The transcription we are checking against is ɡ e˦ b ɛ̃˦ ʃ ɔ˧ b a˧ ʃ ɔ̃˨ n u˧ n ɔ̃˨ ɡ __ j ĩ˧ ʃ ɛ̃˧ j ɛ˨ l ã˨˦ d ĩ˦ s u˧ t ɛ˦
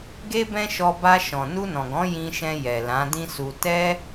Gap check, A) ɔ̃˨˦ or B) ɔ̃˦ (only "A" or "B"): A